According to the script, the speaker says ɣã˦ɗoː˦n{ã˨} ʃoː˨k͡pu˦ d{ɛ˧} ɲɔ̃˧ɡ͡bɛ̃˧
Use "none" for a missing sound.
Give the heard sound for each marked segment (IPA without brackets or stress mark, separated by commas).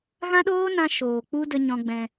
ã˧, ə˧